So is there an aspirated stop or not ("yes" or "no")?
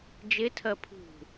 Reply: yes